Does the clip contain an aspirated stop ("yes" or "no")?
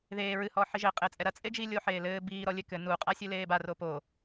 no